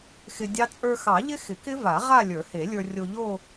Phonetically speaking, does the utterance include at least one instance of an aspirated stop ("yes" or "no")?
no